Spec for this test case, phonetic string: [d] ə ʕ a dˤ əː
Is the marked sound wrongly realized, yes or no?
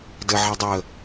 no